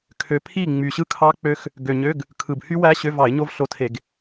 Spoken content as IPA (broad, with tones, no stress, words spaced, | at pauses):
kʰø˨˦pʰi˥˨ ŋ͡my˨˩ɕɯ˥˨ kʰɑ˦˥k͡pø˦˥x | ɡø˨˩ɲø˧˥˧ɡ | kʰɯ˨˩bhy˦˥wæ˦˥ ɕø˧˥˧vɑ˧˩˧ɪ̯ɲo˦˥v ɬo˧˥˧tʰe˧˩˧ɡ